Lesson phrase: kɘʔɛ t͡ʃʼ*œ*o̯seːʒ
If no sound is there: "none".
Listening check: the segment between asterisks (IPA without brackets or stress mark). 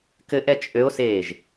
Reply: ø